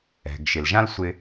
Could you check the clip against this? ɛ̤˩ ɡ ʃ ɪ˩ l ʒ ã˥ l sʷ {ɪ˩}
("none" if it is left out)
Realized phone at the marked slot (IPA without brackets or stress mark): ɪ˥